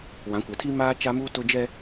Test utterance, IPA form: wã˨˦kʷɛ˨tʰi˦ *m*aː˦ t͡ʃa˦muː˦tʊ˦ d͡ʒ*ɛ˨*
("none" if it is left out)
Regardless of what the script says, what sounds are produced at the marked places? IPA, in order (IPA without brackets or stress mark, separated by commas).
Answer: m, ɛ˦